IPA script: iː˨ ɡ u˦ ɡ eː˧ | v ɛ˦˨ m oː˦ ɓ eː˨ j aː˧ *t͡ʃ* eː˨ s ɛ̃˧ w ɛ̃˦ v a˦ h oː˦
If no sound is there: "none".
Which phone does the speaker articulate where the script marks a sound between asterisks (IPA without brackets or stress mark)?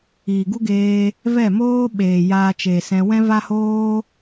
t͡ʃ